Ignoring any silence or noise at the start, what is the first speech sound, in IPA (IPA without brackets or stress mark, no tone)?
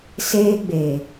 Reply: s